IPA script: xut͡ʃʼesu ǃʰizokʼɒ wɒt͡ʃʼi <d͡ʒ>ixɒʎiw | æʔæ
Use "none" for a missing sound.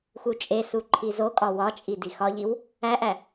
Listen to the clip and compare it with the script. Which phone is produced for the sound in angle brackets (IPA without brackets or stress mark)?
d